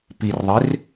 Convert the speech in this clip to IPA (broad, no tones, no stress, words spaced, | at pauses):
pirðˤɪr